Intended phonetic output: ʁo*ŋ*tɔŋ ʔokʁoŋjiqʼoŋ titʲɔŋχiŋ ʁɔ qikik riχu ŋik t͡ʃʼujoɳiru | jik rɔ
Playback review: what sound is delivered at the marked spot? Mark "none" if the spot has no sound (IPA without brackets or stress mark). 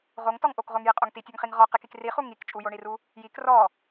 ŋ